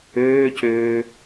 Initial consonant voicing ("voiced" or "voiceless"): voiceless